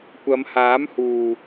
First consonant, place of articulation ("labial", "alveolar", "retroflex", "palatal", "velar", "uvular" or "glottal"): velar